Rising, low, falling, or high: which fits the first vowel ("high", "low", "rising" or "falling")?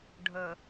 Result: low